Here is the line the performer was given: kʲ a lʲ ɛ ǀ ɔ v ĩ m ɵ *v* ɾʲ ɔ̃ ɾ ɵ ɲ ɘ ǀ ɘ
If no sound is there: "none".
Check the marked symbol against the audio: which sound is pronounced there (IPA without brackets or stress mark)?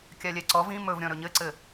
v